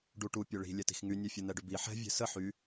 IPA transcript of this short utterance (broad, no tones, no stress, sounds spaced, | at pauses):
ɖ u ʈ u pʲ ø ɭ i̤ lʲ ɛ t i̤ x ŋ y nʲ ø fʲ ə n̪ ɛ ɖ ʏ b i ħ ɛ̤ vʲ ɛ̤ s ə ħ y